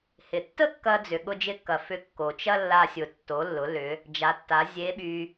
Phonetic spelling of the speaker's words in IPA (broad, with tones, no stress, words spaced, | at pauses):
hɪ˩tːə˥kːɐ˧ d͡zʏ˩ɠʊ˧ d͡ʒɪ˧˥kːɐ˩ fʏ˧ kːo˩t͡ʃɐ˥lːa˧sʲʊ˩ tːo˩˧lːʊ˩˧ lʏ˩˧ | d͡ʒa˩˧tːa˩˧ zʲe˧˥ɓy˧